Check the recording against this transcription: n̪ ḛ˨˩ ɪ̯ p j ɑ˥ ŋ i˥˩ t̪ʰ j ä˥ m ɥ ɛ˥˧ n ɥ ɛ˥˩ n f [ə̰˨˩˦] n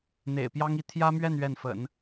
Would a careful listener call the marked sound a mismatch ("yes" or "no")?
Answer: no